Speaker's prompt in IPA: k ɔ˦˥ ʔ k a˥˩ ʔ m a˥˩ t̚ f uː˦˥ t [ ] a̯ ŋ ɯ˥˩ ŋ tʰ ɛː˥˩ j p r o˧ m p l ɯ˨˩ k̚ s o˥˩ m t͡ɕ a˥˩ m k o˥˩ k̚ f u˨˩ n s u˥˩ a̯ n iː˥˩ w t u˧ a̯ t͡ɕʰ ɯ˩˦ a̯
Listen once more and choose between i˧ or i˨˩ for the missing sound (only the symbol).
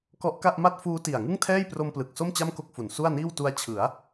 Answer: i˨˩